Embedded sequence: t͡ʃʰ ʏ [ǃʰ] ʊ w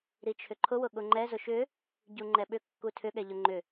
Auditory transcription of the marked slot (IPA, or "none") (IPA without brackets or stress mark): ǃʰ